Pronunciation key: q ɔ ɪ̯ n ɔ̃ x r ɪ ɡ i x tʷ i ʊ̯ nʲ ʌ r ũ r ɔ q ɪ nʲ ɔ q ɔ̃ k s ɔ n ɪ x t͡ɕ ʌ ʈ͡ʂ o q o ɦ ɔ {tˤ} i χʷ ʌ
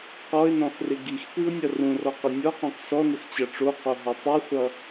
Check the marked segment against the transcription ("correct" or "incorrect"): correct